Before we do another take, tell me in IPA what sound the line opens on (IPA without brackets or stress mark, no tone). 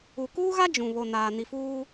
u